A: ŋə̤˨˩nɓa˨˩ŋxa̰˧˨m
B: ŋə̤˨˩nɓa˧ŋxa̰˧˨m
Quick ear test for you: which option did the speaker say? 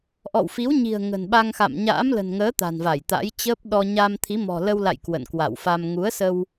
B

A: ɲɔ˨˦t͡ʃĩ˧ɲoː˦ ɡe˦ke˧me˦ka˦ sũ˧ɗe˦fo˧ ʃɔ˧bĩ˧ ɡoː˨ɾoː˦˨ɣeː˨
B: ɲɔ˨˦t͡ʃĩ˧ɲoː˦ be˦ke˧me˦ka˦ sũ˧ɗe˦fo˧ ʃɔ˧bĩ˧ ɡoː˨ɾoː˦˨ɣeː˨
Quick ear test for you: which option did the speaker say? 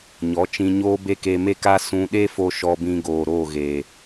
B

